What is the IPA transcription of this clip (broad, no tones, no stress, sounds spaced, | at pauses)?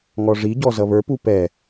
ŋ ɔ ʐ i ɟ ɔ z ʌ β ə˞ p u p ɛ